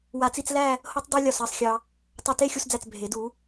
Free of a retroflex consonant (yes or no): yes